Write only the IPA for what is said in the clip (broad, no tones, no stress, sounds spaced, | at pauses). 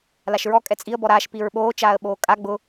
l a ʃ ɹ ɔ kʼ ɛ t͡sʼ i ə̯ b ɔ ɾ aː ʃ p i ɹ ɓ oː t͡ʃ aː ə̯ ɓ oː kʼ a ɡ͡b ʊ